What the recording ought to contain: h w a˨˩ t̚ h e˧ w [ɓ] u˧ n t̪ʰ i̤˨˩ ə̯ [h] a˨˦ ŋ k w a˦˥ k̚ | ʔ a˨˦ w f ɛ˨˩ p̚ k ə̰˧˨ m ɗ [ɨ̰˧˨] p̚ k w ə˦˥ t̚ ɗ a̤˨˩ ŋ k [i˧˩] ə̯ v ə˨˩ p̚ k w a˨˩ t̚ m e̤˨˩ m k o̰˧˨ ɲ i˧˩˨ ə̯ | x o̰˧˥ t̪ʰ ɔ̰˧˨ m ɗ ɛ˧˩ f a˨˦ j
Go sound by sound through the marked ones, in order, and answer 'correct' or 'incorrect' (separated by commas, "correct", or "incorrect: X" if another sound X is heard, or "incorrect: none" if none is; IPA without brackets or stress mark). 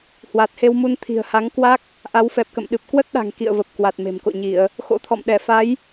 incorrect: m, correct, incorrect: ɨ˨˩, incorrect: ḭ˧˨